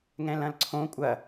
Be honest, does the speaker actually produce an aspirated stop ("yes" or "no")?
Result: yes